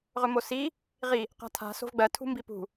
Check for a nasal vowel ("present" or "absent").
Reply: absent